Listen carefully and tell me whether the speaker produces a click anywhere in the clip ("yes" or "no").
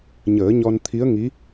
no